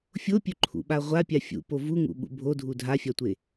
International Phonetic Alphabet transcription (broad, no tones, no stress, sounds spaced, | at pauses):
fʲ o pʲ ɵ ǃʰ ṵ ɓ a ʁʷ a pʲ a fʲ ṵ p o v u ŋ ṵ ɓ ṵ bʱ o dʱ u dʱ a fʲ a tʷ e